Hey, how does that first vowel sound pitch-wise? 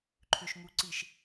low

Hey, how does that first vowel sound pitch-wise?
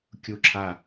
falling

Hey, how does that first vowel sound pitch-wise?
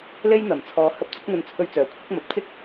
high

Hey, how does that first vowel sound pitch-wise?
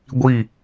falling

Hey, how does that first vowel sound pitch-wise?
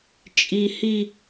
high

